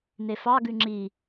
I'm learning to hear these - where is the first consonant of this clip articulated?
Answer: tongue tip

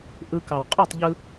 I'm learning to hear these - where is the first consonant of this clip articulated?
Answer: throat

